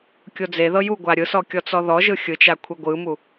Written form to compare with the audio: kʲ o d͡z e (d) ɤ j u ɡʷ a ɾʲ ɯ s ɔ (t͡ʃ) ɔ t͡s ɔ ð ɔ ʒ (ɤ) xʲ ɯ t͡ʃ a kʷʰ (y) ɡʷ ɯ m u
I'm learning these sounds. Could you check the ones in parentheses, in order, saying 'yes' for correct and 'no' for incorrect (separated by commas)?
no, no, no, no